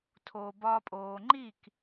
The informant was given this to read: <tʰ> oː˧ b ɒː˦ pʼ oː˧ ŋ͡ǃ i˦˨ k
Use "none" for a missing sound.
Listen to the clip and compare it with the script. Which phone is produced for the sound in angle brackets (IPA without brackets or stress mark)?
tʰ